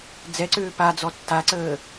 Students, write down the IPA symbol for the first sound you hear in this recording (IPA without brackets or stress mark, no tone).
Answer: d͡z